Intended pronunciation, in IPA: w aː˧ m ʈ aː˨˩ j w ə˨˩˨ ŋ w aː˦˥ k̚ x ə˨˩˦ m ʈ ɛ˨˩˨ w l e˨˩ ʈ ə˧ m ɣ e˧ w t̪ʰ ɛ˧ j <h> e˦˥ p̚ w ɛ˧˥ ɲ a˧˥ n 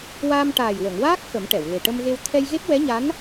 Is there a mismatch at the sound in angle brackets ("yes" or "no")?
yes